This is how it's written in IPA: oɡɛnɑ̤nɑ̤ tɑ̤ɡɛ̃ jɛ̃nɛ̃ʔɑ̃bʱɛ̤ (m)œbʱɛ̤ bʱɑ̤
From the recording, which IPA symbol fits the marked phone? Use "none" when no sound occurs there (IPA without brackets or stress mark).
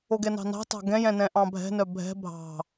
n